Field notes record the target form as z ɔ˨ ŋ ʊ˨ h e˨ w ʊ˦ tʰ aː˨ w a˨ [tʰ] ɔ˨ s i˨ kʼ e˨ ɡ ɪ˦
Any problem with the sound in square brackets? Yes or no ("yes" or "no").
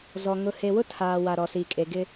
yes